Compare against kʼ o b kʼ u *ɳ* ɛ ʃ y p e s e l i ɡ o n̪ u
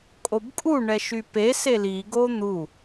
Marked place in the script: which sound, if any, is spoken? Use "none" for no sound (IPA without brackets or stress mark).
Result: ɳ